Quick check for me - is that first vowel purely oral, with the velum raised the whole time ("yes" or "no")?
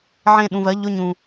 no